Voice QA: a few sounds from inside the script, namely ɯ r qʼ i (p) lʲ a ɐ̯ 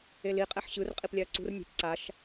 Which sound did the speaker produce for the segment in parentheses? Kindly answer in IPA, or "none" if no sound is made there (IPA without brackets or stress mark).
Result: p